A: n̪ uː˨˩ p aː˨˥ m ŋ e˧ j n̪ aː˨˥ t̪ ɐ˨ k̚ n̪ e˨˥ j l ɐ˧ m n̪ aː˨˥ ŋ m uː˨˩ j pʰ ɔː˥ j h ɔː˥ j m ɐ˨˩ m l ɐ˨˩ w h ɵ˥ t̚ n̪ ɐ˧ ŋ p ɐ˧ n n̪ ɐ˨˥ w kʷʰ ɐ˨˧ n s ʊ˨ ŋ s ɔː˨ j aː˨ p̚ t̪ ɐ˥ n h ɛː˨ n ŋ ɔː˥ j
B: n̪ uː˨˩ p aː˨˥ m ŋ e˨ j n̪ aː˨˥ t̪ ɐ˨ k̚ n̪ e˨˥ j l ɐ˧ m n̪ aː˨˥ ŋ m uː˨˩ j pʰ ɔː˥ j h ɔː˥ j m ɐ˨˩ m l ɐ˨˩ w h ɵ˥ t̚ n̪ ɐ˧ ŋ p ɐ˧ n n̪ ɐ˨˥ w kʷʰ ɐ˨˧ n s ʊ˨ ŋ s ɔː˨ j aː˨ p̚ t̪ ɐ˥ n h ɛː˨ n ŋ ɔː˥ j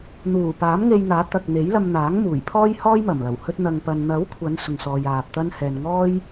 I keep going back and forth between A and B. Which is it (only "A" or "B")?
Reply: A